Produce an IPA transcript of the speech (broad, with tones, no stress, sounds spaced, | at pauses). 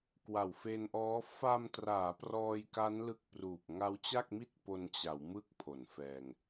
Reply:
k w a˨˩ w f e˧ n ʔ ɔː˦˥ f a˧ m t r aː˩˦ p r ɔː˧ j k a˦˥ n l ɯ˦˥ k̚ p r uː˨˩ p̚ ŋ a˦˥ w t͡ɕ a˥˩ k̚ m i˥˩ t̚ p o˧ n t͡ɕ a˩˦ w m ɯ˥˩ k̚ pʰ o˩˦ n f ɛː˧ ŋ